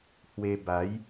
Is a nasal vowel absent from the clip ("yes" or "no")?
yes